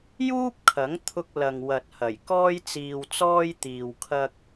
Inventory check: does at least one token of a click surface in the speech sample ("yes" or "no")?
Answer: no